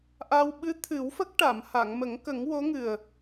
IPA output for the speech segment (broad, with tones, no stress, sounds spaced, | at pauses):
ʔ a˧ w ɓ ɨ˧˥ t̪ʰ ɨ˨˩˦ w f ə˦˥ k̚ ʈ a˨˩˨ m h a˨˩˨ ŋ m ə˨˩˦ ŋ k ə˨˩˦ ŋ w o˧˥ ŋ ɨ˨˩ ə̯